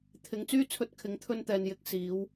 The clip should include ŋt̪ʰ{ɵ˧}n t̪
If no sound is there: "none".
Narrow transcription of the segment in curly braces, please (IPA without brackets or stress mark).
ɵ˧